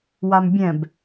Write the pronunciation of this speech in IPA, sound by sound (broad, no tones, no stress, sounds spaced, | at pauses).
w a m bʲ ɛ̃ b